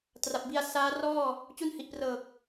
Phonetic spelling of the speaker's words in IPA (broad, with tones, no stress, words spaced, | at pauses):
tra˨˩p̚bi˧a̯ saː˦˥ rɔː˥˩ | t͡ɕu˦˥nhi˨˩ʔprɤː˨˩k̚